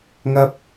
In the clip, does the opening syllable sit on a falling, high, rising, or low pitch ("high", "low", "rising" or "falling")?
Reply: high